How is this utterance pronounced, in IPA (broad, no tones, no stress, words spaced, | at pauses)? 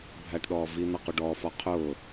bʱæʈɗɔːvi n̪ʌquɖɔː fɒqʰʊː